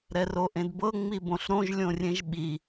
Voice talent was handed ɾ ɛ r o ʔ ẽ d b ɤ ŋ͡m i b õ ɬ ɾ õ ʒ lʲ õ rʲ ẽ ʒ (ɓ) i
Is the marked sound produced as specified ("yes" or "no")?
yes